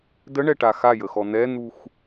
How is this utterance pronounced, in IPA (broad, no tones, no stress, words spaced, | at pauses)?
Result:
dəɳɛʈa xajəxɔ n̪ɛn̪ux